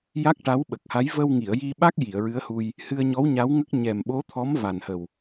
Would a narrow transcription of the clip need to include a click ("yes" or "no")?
no